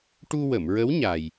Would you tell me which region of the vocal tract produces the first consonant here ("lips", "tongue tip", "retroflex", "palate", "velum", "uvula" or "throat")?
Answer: retroflex